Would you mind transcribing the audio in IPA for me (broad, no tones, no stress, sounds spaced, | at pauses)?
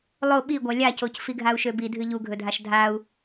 lˠ o ɓ i ɡʷ a lʲ a c o c f i ɡʱ a u̯ ʃ ø b i dʱ ɨ ʎ u ɡʱ ɵ dʱ a ʃ dʱ a u̯